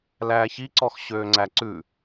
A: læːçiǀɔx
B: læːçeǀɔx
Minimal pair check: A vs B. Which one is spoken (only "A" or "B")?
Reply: A